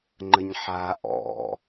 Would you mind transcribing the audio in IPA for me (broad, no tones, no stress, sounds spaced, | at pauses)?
ŋ͡ǃ ə ɲ ħ a ʔ ɔ̰